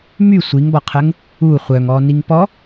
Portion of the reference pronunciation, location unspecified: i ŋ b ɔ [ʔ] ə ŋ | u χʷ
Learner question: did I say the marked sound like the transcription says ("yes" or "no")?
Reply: no